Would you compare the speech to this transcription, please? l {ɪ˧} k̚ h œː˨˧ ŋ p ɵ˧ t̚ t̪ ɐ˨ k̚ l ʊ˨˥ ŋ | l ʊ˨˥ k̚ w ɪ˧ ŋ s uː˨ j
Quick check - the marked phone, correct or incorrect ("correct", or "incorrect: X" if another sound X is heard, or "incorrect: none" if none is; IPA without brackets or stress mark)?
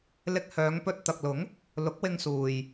correct